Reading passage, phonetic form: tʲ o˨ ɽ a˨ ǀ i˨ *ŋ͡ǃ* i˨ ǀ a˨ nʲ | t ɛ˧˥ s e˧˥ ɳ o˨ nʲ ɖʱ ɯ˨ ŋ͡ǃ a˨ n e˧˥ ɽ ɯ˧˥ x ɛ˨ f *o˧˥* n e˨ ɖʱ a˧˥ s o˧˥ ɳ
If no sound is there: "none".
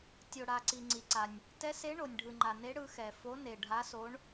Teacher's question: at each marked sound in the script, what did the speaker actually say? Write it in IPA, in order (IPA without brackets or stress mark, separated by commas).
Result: ŋ͡ǀ, o˧˥